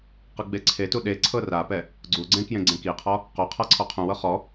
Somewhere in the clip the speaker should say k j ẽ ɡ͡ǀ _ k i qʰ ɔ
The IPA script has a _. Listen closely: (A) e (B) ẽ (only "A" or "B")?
B